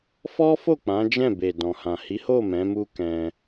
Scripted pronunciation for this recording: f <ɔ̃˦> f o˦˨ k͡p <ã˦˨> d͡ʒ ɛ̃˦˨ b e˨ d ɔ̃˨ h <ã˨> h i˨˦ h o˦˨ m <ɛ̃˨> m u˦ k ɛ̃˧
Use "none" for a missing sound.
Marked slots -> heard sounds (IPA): ɔ˦, ã˨˦, ã˨, ɛ̃˨˦

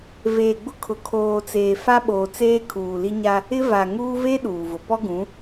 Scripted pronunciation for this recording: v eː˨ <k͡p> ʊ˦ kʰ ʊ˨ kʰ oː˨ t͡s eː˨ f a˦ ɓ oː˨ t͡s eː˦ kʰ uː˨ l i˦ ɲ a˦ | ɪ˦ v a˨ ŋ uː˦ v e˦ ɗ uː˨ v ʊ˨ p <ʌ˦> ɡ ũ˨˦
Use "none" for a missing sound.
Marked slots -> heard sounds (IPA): ɡ͡b, ɔ˦

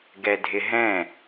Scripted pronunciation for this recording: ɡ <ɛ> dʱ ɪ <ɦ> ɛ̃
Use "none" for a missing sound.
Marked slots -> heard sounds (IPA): ɛ, ɦ

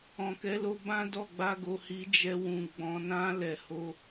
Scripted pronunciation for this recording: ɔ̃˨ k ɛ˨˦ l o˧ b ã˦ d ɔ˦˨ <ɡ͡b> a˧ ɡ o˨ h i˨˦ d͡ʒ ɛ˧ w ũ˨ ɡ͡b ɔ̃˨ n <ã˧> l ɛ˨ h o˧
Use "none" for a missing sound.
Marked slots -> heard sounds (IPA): ɡ͡b, ã˧

